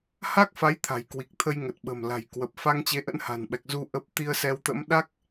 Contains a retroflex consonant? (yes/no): no